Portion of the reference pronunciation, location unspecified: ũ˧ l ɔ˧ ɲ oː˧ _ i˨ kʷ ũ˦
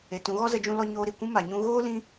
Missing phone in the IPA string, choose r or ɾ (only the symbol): ɾ